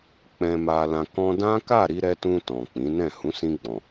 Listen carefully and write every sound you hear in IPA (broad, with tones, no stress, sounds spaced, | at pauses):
k͡p ɛ̃˨ m a˨ l ã˨ k ɔ̃˧ d ã˦ k a˦˨ ɾ i˧ ɾ ɛ˧ t ũ˧ t ɔ̃˨ k͡p ĩ˨˦ n ɛ̃˦˨ h ũ˨˦ s ĩ˧ ɡ͡b ɔ̃˨